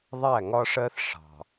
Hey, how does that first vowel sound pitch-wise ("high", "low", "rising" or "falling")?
falling